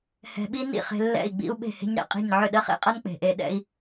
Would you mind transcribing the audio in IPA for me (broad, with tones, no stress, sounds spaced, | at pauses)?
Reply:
h ɛ̤˧ ɓ i˦ n ḭ˦˨ χ e̤˧ lː ɛ̰˦˨ i̯ ɡ͡b ḭ˦ u̯ ɓ e̤˦˨ h e̤˦ ɲ ɾ ɛ̰˧ qʼ i̤˦˨ ɲ ʕ ʏ˦˨ ɗ ɜ˦ χ ḛ˦ qʼ ʌ˦ n k͡p e̤˨ ʔ e˧ ɗ ɛ̰˦ i̯